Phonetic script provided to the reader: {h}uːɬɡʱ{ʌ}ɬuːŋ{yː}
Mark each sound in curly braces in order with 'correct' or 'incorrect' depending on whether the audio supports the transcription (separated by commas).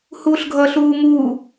correct, correct, incorrect